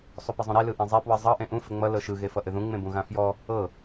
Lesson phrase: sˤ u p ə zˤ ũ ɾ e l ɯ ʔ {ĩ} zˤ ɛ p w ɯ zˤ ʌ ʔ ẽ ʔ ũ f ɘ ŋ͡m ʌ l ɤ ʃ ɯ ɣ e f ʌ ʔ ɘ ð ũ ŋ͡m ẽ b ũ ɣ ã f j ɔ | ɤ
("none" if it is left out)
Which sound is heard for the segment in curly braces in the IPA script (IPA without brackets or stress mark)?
ẽ